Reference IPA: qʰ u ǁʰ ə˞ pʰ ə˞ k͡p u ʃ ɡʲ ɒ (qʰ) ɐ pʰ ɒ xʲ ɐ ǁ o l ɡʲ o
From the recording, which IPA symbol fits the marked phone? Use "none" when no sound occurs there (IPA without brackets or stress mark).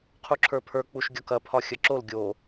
k